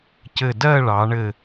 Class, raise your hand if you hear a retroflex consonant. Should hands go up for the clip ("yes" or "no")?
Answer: yes